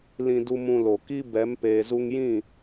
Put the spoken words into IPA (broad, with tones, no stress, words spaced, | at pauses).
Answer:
lĩ˧du˧ mũ˧lo˨ ki˦bɛ˨˦m peː˨zu˧ŋjĩ˦˨